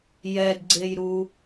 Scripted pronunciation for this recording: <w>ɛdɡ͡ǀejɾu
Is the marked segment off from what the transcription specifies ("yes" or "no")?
yes